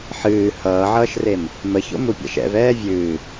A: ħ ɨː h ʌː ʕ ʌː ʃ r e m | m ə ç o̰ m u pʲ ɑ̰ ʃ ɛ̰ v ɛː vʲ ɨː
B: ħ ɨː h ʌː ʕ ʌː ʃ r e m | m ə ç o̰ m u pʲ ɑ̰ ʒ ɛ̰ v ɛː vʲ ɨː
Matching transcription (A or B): A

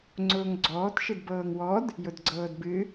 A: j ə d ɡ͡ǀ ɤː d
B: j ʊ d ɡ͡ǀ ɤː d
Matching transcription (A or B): B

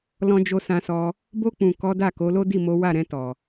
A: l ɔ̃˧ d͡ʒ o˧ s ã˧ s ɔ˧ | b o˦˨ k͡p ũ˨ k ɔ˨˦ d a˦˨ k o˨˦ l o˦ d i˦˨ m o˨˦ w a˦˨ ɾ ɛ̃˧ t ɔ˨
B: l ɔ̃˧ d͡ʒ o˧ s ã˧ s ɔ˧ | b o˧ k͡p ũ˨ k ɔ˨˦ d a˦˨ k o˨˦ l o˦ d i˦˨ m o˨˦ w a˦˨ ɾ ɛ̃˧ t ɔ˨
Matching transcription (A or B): B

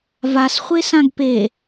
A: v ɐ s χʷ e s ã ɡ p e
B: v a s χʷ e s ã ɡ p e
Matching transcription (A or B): B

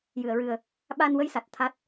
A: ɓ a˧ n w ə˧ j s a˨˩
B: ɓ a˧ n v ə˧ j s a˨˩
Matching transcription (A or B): A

